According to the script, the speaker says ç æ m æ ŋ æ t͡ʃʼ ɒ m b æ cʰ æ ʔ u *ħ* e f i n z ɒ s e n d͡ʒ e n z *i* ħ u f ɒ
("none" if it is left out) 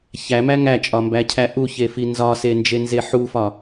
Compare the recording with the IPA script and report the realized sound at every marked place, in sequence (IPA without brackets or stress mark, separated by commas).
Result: ç, e